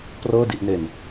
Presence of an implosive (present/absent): absent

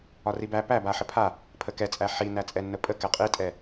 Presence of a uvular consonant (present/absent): present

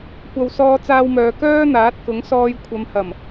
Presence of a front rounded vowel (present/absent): present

